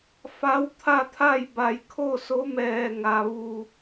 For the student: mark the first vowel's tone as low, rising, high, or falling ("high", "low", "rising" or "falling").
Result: rising